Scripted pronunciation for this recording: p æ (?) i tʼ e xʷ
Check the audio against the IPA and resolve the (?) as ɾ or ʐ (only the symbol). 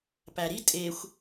ɾ